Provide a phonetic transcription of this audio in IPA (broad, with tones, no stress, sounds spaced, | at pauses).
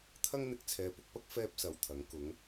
t̪ʰ ɐ˥ ŋ n̪ ɪ˧ k̚ t͡sʰ ɛː˨˧ p ʊ˨˥ k̚ p ɐ˥ k̚ f ɛː˥ p̚ s ɐ˨˧ w t̪ʰ ɐ˨˥ ŋ k ʊ˨˧ ŋ